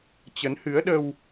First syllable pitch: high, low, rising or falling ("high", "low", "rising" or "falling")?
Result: rising